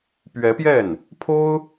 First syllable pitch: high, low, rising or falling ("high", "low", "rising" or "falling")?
rising